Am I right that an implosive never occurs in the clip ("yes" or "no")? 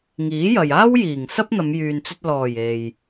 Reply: yes